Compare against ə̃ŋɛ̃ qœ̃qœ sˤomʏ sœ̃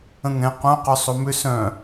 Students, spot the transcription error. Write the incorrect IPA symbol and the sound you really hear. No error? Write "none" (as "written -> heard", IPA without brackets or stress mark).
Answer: none